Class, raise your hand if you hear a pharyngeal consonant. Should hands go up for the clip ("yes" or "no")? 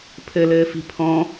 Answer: no